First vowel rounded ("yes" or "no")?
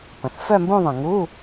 no